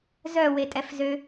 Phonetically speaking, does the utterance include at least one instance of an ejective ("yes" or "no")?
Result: yes